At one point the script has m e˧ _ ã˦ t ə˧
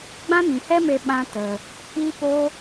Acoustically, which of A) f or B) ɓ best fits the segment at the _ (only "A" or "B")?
B